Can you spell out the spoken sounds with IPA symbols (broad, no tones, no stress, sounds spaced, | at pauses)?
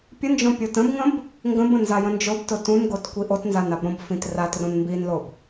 pʲ ə n d͡ʒ õ pʲ o t ə̃ b ŋ ə̃ b | ŋ ɡ ə̃ b ə̃ n z a j ə̃ n d͡ʒ o b t ʊ t ũ n ɡ o t kʷ i ʔ o t n z a n a b ɾ õ b f ĩ t r a t r õ n m b i n l o b